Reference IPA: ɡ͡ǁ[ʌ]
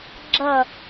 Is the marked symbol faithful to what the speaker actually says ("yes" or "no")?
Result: yes